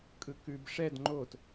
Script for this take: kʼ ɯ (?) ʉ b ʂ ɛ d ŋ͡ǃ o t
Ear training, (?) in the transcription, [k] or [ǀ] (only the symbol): k